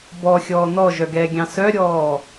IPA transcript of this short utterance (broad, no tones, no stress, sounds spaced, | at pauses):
b ɔ xʲ ɔː n ɔ ʒ œ ɡ ɛː ɡʲ ɑ̃ s œ ɾʲ ɔː